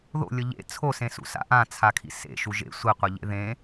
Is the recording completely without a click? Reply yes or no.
yes